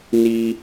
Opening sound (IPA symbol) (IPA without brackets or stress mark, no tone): n